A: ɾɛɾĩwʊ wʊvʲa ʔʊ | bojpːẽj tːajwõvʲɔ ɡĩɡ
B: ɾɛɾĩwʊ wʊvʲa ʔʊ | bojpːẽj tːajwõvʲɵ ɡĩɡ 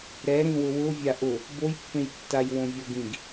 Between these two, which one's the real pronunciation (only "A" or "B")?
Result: A